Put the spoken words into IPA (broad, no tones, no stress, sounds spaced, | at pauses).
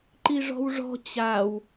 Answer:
ǃ i ʐ ɔ̤ w ʐ ɔ̤ t͡ɕ a w